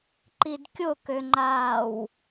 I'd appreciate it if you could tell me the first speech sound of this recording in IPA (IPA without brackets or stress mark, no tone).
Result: ǃ